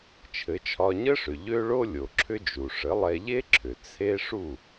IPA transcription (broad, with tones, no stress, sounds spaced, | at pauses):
t͡ʃʰ ɘ˩˥ t͡ʃʰ ɒ˧ ɲ ə˥ ʂ ʏ˩ ʎ ø˥ ɭ o˥ lʲ o˩ ǁʰ ʏ˥ d͡ʒ u˩ ʂ ə˩˥ lˠ ɛ˧ ʎ e˥ ǁʰ ʏ˩ t͡sʰ e˥ ʂ u˥˩